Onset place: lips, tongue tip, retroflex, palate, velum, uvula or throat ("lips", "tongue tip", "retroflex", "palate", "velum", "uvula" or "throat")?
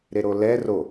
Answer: tongue tip